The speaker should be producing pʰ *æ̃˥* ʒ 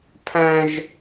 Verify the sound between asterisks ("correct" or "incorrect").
correct